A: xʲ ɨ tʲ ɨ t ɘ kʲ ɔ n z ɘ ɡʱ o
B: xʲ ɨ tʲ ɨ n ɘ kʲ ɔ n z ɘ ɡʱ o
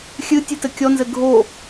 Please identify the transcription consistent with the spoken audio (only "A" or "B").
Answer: A